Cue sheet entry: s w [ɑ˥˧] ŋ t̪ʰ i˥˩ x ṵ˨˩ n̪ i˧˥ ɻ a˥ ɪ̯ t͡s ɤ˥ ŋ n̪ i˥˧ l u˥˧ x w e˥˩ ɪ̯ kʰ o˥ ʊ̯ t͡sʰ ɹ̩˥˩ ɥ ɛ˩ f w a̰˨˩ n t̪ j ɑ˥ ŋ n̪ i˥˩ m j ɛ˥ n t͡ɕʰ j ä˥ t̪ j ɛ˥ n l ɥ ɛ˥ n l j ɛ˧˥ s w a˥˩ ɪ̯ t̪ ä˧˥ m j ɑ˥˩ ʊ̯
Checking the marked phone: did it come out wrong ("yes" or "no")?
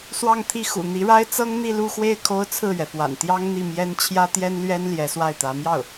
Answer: no